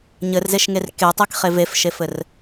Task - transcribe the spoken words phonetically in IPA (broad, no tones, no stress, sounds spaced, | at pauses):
ɲ ɘ r z e ʃ ŋ e r k e tˤ e k χ e v e f ʃ e f ɘ r